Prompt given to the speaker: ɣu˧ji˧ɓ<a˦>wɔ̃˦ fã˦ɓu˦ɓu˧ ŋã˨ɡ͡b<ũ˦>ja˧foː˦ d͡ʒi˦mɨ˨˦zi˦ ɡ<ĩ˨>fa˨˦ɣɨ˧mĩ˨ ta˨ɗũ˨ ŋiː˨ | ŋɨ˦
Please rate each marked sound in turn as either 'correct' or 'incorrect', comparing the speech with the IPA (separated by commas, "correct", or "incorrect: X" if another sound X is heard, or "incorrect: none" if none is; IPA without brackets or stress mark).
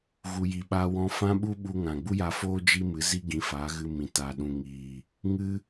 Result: correct, incorrect: u˦, incorrect: ĩ˨˦